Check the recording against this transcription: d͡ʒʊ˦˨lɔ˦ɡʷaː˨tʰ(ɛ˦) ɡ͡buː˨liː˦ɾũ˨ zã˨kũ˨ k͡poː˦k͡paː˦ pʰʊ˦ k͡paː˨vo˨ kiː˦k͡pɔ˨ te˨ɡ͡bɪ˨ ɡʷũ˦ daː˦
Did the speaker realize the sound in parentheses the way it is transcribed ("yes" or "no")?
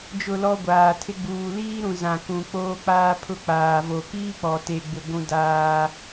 no